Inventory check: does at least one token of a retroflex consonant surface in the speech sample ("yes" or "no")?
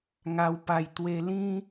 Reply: no